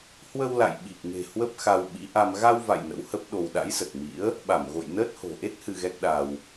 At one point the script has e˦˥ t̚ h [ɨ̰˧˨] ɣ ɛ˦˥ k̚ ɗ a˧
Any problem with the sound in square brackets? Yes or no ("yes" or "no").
yes